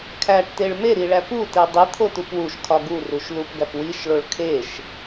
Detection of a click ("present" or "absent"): absent